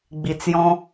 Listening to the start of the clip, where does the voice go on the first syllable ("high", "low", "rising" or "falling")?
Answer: low